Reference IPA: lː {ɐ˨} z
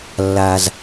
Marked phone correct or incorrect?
incorrect: a˨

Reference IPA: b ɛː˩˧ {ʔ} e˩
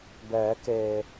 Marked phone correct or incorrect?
incorrect: k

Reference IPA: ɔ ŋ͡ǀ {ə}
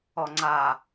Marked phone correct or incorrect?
incorrect: a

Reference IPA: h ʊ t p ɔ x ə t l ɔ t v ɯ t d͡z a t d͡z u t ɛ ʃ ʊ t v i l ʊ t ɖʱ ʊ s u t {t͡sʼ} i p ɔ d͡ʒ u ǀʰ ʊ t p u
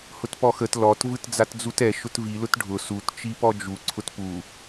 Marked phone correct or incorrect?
incorrect: t͡ʃ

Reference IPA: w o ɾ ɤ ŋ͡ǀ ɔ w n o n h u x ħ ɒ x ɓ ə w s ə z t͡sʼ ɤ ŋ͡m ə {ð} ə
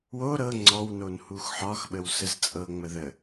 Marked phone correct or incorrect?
correct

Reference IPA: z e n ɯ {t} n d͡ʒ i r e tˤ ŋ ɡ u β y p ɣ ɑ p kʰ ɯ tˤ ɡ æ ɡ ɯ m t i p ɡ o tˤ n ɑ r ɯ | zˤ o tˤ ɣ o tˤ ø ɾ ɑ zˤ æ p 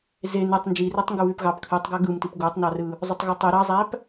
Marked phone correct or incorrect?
incorrect: tˤ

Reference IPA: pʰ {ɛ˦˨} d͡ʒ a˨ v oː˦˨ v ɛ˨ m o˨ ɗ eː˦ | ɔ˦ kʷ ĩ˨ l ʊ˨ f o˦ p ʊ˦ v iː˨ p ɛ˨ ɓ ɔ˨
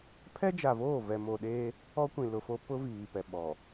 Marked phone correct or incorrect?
incorrect: ɛ˦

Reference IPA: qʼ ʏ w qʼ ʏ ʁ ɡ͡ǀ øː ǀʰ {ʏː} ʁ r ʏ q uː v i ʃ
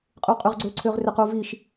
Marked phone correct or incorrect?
correct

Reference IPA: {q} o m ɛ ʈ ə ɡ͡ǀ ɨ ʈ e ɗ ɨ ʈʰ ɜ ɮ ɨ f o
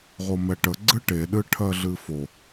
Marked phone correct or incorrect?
incorrect: ʁ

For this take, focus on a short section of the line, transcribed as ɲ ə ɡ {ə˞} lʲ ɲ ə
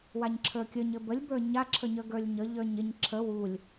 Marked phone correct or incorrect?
correct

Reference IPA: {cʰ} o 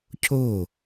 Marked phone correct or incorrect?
correct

